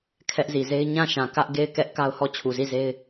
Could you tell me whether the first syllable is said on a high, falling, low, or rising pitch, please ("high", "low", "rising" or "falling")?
high